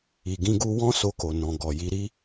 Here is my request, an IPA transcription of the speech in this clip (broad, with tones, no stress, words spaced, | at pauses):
i˨ɡĩ˧ ɡu˧wɔ̃˦so˧ ko˧nɔ̃˧ ɡɔ˨ji˧ɾi˦